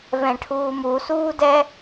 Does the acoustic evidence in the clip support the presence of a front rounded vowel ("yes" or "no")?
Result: no